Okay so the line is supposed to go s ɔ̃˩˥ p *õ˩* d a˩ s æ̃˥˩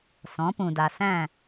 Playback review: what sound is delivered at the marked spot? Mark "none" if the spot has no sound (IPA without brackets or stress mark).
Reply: ũ˩